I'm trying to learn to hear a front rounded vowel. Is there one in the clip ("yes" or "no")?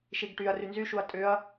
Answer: yes